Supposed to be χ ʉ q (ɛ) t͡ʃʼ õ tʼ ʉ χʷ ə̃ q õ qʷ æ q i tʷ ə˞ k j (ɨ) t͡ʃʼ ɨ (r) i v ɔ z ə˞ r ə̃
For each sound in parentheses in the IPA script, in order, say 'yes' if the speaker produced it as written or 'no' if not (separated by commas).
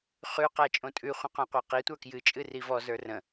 no, yes, yes